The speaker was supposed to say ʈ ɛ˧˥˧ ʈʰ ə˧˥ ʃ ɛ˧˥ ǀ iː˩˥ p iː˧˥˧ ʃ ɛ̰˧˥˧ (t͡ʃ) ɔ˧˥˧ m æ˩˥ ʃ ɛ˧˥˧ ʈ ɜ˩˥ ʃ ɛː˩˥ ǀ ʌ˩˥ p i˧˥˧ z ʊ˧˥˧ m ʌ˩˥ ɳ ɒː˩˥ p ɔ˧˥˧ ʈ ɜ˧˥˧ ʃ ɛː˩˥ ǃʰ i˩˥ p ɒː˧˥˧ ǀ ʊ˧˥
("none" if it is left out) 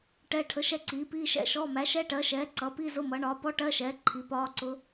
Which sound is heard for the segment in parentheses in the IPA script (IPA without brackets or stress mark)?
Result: ʃ